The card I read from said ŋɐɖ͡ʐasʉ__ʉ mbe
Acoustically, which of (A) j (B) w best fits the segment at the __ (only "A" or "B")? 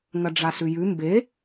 A